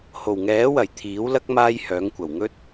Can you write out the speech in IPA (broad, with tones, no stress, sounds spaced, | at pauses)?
h o˨˩ w ŋ ɛː˨˥ w ɐ˨˩ j t̪ʰ iː˨˥ w l ɐ˥ k̚ m aː˥ j h œː˨˥ ŋ kʷ ɐ˨˩ w ŋ ɵ˥ t̚